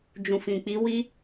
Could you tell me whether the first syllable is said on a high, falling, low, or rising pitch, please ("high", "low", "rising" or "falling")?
low